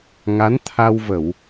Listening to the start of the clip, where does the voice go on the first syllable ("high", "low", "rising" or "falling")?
rising